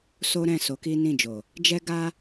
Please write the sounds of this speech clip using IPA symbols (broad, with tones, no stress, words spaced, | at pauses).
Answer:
so˦ɾɛ̃˦˨ so˨˦ki˦ nĩ˦˨d͡ʒo˨ | d͡ʒɛ˦ɡa˦